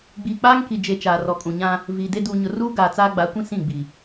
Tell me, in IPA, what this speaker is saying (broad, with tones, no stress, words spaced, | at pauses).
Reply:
ɡ͡biː˨k͡paː˦ŋki˨d͡ʒe˨ t͡ʃaː˨rɔ˨kʼũ˨ɲã˦ | viː˨de˦ duː˨ɲʊ˨ruː˦ ɡaː˨t͡saː˦ɡ͡ba˨˦kʷĩ˦ sĩ˦˨ɡ͡bi˨